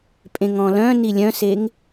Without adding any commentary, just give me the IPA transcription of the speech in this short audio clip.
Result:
pʼ ẽ ŋ ɔ̃ l œ̃ n i lʲ œ̃ s e ŋ

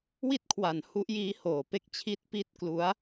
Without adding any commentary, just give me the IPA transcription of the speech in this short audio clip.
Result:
w i˥˩ t̚ kʰ w a˩˦ n h u˦˥ ʔ j iː˦˥ h oː˩˦ p e˦˥ k̚ t͡ɕʰ i˥˩ t̚ p i˥˩ t̚ k l u˦˥ a̯

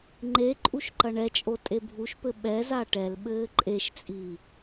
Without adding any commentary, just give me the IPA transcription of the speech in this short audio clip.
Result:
ŋ͡ǃ e ǃʼ u ʃ ǃ ɐ ɳ ɛ t͡ʃʼ o tʼ e bʱ u ʃ p ɘ ɓ ɛ z a ʈ ɛ l ɓ ɘː ǃʼ e ʃ t͡sʼ iː

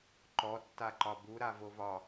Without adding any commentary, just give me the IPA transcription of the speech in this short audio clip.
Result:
ǃ ɔ tː a ǃ ɒ b u ɾ a v o v ɒ

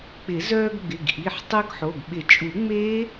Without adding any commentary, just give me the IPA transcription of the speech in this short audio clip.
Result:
k͡p ɪ˨˩˦ z œː˧ ɡ ɡ͡b ɪ˩˧˩ ɡ ʔ i˩˧˩ ħ tˤ œ˦˥ ɡ ħ o˩˧˩ ɡ ɓ ɪ˨˩˦ t͡ʃʼ u˨˩˦ ŋ͡m eː˦˥

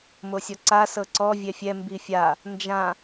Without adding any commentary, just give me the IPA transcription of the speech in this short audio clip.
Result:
m o sʲ ɔ ǀ a s ɤ ǀ ɔ vʲ ɛ fʲ ɛ m b i fʲ a | n d͡ʒ ã

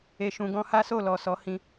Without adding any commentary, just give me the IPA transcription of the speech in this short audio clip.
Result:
e˨ ʃ ũ˨ ɡ ɔ̃˧ h a˦ s o˦˨ l ɔ˨ s ɔ˨˦ h ĩ˧

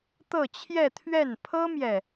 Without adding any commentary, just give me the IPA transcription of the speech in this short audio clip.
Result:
t̪ ɤ˥˧ t͡ɕʰ j ɛ˥˧ t̪ʰ ɥ ɛ˥˩ n pʰ ɤ˥ m j ɛ˨

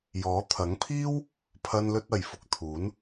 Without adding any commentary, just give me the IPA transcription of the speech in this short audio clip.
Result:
j ɔː˨˥ t̪ʰ ɐ˨˥ ŋ pʰ iː˥ w | pʰ ɐ˧ n l ɵ˧ t̚ ɐ˨ j f ʊ˧ k̚ t̪ʰ uː˨˥ n

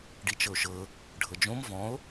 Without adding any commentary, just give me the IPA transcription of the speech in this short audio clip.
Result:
ɖ i t͡ʃ ɤ o̯ ʃ ɤ | ɖʱ ɤ d͡ʒ õ m v ɔ̃ o̯

